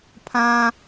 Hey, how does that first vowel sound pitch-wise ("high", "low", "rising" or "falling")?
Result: high